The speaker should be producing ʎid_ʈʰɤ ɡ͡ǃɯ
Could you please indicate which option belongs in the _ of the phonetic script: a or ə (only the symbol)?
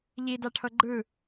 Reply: a